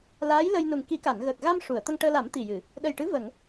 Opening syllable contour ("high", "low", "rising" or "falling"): rising